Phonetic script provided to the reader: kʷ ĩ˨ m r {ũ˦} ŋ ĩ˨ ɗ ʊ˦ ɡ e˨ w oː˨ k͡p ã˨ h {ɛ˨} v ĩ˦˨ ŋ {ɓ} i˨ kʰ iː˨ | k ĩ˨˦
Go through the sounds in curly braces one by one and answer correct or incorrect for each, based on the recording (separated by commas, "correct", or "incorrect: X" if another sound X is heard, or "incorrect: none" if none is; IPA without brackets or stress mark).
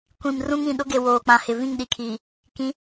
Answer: correct, incorrect: ɪ˨, incorrect: ɗ